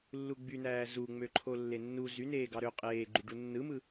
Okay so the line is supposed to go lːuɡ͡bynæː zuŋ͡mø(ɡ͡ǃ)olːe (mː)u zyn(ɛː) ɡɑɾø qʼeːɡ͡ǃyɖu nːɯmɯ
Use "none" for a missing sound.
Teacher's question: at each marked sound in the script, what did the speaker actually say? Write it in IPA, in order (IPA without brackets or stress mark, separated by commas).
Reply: ǃʰ, nː, eː